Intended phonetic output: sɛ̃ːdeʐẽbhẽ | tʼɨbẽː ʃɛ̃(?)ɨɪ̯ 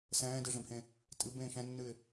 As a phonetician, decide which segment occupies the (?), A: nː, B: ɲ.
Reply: A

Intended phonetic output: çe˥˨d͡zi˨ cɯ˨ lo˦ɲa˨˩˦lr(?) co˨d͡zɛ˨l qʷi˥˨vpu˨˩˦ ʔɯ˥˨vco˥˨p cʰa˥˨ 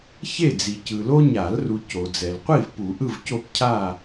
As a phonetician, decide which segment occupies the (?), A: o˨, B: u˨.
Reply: B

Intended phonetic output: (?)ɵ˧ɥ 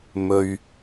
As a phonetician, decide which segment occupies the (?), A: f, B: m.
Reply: B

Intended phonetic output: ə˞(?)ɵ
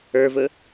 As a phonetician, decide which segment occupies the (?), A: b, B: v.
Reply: B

